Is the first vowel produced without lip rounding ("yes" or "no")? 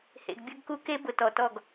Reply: yes